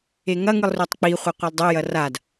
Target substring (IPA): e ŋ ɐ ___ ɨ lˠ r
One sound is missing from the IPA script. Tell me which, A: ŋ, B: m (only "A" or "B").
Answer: A